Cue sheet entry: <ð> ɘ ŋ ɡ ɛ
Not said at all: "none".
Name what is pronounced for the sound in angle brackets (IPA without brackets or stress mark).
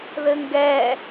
ð